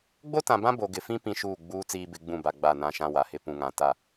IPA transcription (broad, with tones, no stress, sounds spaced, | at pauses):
ɡ͡b o˦ t ã˨ b ã˦ b o˨ ɡ ɪ˨ f ĩ˦ p ĩ˦ ʃ uː˦˨ ɡ͡b uː˦ t͡s iː˦ b ɪ˨˦ ɡ͡b ũ˦˨ b a˨ ɡ͡b a˦˨ n ã˦ ʃ ã˦ w a˨ h ɪ˦ p ũ˨ ŋ ã˨ t a˦˨